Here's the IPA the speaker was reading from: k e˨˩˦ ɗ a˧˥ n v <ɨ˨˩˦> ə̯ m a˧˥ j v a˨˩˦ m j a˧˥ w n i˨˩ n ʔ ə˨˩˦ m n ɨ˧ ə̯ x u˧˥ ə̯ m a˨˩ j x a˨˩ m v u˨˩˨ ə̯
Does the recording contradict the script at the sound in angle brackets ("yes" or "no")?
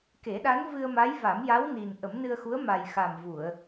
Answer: yes